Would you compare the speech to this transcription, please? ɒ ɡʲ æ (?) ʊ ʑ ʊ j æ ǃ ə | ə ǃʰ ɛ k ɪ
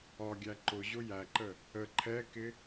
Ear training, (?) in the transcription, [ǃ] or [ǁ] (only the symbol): ǃ